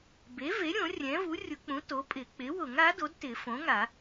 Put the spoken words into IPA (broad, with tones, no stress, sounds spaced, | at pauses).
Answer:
b e˩˥ v e˩˥ ɾʲ õ˨˩˦ rʲ ɛ̃˩˥ v u˩˥ rʲ ʊ˨˩˦ k͡p ũ˩˥ t o˩˥ pʼ ɪ˨˩˦ k͡p ɪ˩˥ w ʊ˨˩˦ ŋ a˩˥ d o˩˥ d t ɪ˨˩˦ f õ˩˥ ŋ a˨˩˦